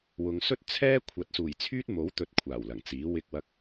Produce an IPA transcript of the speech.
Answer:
w ʊ˨ ŋ s ɵ˥ t̚ t͡sʰ ɛː˥ kʷʰ ɐ˨˥ t̚ s uː˨˩ j t͡sʰ yː˥ t̚ m o˨˥ w t̪ ɵ˨˥ t̚ kʷʰ aː˨˩ w l ɐ˨˩ ŋ t͡s iː˨˥ w ɪ˧ k̚ w ɐ˧ k̚

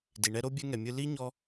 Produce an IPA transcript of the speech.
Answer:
d i˨ ɳ ɛ˦ ɾ o˦ bʲ ɛ˦ ŋ ɛ˨ mʲ ɯ˦ l i˥ ɲ ɔ˦

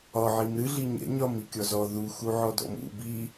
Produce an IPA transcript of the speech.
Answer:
ɒ ʕ i m ɾ ɨ ɮ i ɲ ɛ̰ ɲ ɒ m i kʲ ɔ z ɔ ð u x u ʕ ɔ d ɔ̰ m ṵ b i

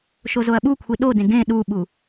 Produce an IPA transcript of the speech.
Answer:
ʃ o z o ɐ̯ ɓ u kʷʰ i ɗ o d ẽ ɡ ẽ ɗ u ɓ u

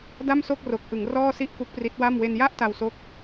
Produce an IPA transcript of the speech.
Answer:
d a˥˩ m s o˥˩ k̚ r o˨˩ k̚ ʔ ɯ˩˦ ŋ r ɔː˥˩ s i˥˩ ʔ k u˦˥ k̚ p r i˦˥ t̚ w a˥˩ m w e˧ n j a˥˩ ʔ t a˧ w s o˦˥ k̚

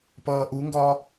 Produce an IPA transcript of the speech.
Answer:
p ʌː ʔ u ŋ ɡ ɒ

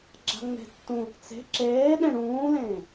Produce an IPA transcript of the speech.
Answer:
ɡ͡ǁ a̤ ŋ͡m e̤ tː ũ | t͡s e̤ ǁ eː ɗ ẽ ɽ ũː l ẽː

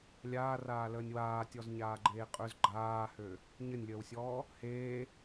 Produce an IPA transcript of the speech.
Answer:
lʲ aː r aː l əː nʲ w aː tʲ ɔ z ɲ aː ɡ͡ǃ eː qʼ ø z ɡ͡ǃ aː h ø | ɲ ə nʲ lʲ əː w sʲ ɔː | h eː

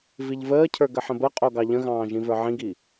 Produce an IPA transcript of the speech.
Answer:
v i ʎ v əː cʰ ə˞ ɡ ə ħ ə̃ b ə qʼ o ɡ ɑ ʎ ə̃ ɣ ɑ̃ː ʒ ĩ v ə˞ ʕ ĩ ɡ i

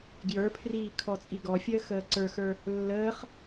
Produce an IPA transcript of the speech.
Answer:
ɡ j ə˞ pʰ r iː kʰ ɔ t͡sʼ i ɡ ɔ fʲ əː x əː ǀ ə˞ x ə˞ | lː əː χ

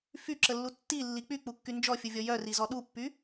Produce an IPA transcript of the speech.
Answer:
f y ǁ ə lː u tː i lː i k͡p y k͡p u kː y n d͡ʒ ɔ fʲ u vʲ ɔ j œ r i z ɔ ɗ u pː y

